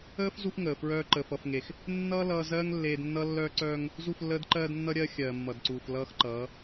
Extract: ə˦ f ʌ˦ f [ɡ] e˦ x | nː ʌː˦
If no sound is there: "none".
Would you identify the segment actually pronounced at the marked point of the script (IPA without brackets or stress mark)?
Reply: ŋ